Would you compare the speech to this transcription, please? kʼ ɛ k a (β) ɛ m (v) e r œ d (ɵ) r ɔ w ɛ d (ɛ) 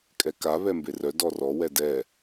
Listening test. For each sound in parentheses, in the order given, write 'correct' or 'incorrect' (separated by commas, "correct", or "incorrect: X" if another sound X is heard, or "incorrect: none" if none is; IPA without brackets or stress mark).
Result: correct, incorrect: b, incorrect: ɔ, correct